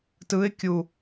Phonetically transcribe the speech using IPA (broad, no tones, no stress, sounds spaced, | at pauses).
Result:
t ɯ ɪ̯ kʲ u